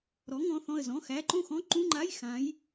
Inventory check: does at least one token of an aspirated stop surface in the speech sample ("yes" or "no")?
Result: no